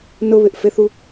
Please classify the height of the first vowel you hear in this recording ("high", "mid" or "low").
high